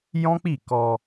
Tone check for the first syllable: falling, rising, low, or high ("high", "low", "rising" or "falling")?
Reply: high